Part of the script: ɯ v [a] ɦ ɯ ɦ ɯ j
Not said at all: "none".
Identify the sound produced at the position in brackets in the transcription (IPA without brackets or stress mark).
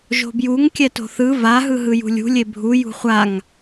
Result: a